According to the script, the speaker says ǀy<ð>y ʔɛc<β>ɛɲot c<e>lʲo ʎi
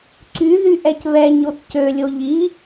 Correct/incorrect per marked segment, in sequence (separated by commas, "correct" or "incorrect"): correct, correct, incorrect